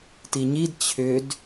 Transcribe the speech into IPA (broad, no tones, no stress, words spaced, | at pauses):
tiɲid t͡ɕʰʏd